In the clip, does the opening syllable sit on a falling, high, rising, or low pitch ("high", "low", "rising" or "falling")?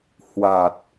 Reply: low